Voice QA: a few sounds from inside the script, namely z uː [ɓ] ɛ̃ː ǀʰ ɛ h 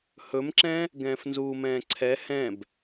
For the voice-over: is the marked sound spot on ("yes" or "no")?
no